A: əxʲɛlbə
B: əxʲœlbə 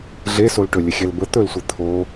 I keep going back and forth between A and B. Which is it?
A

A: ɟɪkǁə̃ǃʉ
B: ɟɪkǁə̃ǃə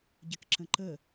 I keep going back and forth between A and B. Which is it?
B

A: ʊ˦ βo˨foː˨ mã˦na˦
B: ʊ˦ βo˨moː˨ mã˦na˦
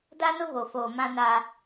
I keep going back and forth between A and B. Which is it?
A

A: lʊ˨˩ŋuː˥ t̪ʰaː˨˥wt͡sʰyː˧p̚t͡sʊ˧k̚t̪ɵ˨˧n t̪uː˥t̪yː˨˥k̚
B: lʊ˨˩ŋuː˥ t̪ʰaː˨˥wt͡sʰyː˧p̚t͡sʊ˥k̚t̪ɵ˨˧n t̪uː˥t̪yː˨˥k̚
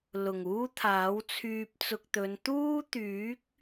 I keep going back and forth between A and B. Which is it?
A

